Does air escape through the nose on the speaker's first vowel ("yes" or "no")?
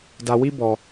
no